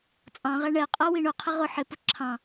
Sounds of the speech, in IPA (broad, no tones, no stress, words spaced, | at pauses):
t͡sʼɑ̃ʁæ ɳɛ qʼʌ wiɳʊqʰɪ ʁʊ ħɪpʊ ǁʰɑ̃